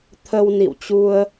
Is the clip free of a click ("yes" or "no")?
yes